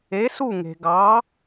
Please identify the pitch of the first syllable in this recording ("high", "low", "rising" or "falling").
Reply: rising